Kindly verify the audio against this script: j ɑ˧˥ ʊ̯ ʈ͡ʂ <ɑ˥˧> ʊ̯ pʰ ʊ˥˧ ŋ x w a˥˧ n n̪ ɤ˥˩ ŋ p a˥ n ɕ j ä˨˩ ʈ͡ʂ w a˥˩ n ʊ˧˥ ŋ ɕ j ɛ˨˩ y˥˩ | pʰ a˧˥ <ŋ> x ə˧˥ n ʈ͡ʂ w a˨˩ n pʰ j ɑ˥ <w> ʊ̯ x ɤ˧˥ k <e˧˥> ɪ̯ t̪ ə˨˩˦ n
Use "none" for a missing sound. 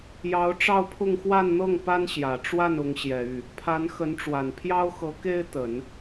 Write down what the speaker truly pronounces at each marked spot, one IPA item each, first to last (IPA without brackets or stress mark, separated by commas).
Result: ɑ˥˧, n, none, e˥